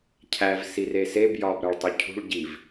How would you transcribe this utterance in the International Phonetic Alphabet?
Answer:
cʰ æ v s i r e s e b j ɒ b ɾ æ ɭ tˤ u cʰ ṳ ɭ ɟ i v

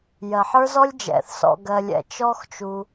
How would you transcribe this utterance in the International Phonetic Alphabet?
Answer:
j ɜ˩ ħ ə˞˦ z ɔ˦ lʲ d͡ʒ ɛ̰˩ θ s ɔ̰˨ ɡ ɜ˨ lʲ ɛ̰˨ t͡ʃ ɔ˦ x t͡ʃ u˨

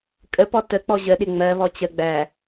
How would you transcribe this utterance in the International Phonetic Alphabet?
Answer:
kʼ ə p ɔ t ə k͡p ɔ ʑ ə ɗ ɪ ŋ͡m ɜ β ɔ t͡ɕ ə ɡ͡b æ

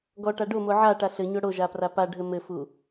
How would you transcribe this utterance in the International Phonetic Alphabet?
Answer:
ɡ ɔ ʈ a ɖ o m o ʕ a ʈ a ɬ ɘ ɲ o ɽ o ʒ a p r a p a ɖʱ ɘ m ɘ f u

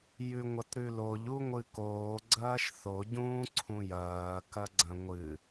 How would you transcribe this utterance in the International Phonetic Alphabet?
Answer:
j ʉ ŋʷ ɐ t ɾ ʉ l o ʎ u ŋʷ ɨ k oː ɡ͡ǀ ɐː ʃ θ o ɟ ũː ǀʰ ũ j ɐː k ɐ ɡ͡ǀ ɐ̃ ŋʷ ɨ

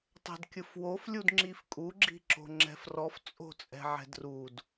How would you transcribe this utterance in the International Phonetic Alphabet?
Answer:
tˤ ɛ̤ d kʲ ɯ f w o f lʲ u d ŋ͡ǁ i f kʼ u ɡ͡ǁ i̤ ǁ o̤ ŋ͡ǁ ɛ̤ f r ɔ f t͡sʼ o̤ t͡sʼ ɛ̤ ʕ ɛ̤ d r u d

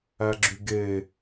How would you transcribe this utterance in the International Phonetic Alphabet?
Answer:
æ ɡ͡ǁ y ɡ e

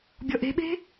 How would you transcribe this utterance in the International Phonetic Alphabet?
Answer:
bʲ ɔ ʔ e̤ ɓ e̤

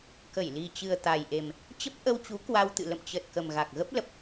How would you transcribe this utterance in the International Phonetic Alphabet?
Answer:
k ə˧˩ j l i˨˩ t͡ɕ ɨ˨˩ ə̯ t̪ a˨˩ j ʔ e˨˩ m | t͡ɕ ə˦˥ p̚ ʔ ə˧ w t͡ɕ u˨˦ k w a˧ w t̪ ɨ̰˧˨ l ə̰˧˨ m t͡ɕ ə˨˩ t̚ k ə˨˩ m ɣ a˨˩ k̚ ɣ ə˦˥ p̚ l ə˨˩ p̚

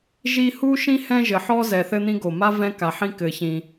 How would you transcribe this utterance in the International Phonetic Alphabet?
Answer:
ʒ i˦ h u˥ ʃ ĩ˥ h ɛ̃˦ ʒ ɘ˨ ħ ɔ˦ z ɛ˨ θ ɘ˦ n̪ ĩ˦ ɡ o˨ m a˥ v ɛ̃˦ k a˨ ħ ĩ˦ k ɘ˨ ç ĩ˨

